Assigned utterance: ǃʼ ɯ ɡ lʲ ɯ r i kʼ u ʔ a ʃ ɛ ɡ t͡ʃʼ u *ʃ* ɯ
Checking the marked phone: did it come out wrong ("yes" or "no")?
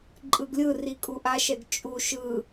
no